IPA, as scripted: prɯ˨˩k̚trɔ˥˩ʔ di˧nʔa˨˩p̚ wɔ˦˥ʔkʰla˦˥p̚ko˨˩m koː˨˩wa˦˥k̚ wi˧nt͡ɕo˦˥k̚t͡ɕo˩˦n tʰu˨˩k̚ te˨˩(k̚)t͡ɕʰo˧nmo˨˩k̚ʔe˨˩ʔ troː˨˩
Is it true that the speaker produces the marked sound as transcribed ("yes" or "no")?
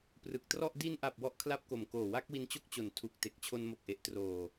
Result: yes